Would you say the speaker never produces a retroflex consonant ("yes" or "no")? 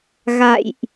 yes